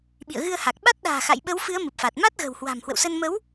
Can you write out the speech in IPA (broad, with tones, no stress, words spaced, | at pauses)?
ɓḭ˧˨ə̯ɣɨ˧ə̯ha˨˩k̚ɓa˦˥t̚ ɗa̤ː˨˩xa̰˧˨jɓə˨˦wfɨ˨˦ə̯ mɨ˨˩p̚fa˨˩t̚ ma˦˥t̚ɣə̤˨˩whwa̤˨˩m hwə̰˧˨wsə˧n mə˨˦w